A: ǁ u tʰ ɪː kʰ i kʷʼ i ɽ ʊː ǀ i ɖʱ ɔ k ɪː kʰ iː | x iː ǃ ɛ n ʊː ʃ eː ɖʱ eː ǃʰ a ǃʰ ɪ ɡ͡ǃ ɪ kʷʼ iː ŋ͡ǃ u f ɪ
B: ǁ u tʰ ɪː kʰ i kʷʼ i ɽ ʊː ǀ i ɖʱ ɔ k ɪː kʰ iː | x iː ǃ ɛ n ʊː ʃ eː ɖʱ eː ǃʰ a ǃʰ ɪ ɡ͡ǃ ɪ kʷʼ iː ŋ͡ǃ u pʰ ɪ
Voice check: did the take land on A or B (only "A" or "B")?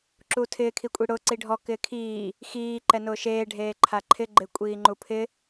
B